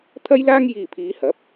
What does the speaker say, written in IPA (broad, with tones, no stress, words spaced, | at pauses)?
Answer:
t̪ʰɐ˥jlaː˥ŋ jiː˨pʰiː˨˧hɐ˨˥p̚